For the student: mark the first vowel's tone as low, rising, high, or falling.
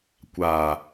low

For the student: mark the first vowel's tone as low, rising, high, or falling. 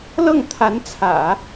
falling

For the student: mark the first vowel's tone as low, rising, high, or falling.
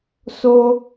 high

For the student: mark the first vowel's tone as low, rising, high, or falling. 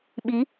rising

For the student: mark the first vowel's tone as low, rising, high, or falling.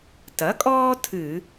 rising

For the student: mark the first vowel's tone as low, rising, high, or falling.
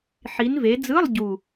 rising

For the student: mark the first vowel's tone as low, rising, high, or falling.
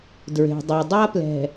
low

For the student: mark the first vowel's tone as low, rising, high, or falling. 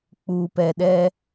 low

